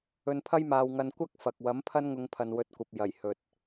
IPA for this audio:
ɵ˧ n pʰ ɐ˥ j m aː˧ w ŋ ɐ˧ n kʷ ɐ˥ k̚ f ɐ˨ k̚ w ɐ˨˥ m pʰ ɐ˥ n ŋ ʊ˧ ŋ pʰ ɐ˨ n w ɵ˨˥ t̚ kʷ ɐ˨ p̚ j ɐ˨˩ j h ɵ˨ t̚

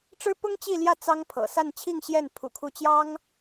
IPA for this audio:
ʈ͡ʂ ɻ̩˥ p ʊ˥ ŋ t͡ɕ i˥˧ l j ä˥˩ t͡s ɑ˥ ŋ pʰ ɤ̰˨˩ s a˥˧ n t͡ɕʰ i˥˧ ŋ ɕ j ɛ˥˩ n pʰ ṵ˨˩ kʰ u˥˩ t͡ɕ j ɑ˥ ŋ

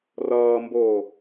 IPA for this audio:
r ʌː m b oː

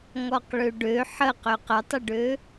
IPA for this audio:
ŋ ɔ q ɭ ø ɖ ø ħ ə q ø q ə tˤ ə ɖ ø

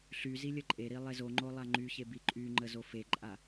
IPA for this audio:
ɬ y z i lʲ ə ǃʼ e ɾ i lˠ e z o ŋ͡ǃ o lˠ a ŋ͡ǃ y ç e b i ǃʼ y ŋ͡ǃ ə z o f e ǃʼ a

